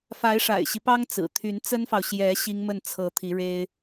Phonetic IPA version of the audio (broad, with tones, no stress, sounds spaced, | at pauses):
f a˧˥ ɪ̯ ʂ a̰˨˩ ɪ̯ ɕ i˦ p ɑ˥ ŋ t͡s ɹ̩˨˩ t̪ʰ y˧˥ n t͡s ə˥ n f ɑ˨ ʊ̯ ɕ j ɛ˧˥ ɕ i˥ ŋ m ə˥˩ n t͡sʰ ɤ˧˥ t̪ʰ i˧˥ ɻ e˥ ɪ̯